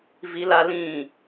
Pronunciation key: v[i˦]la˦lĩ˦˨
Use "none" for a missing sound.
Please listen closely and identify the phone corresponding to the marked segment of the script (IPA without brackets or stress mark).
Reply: i˦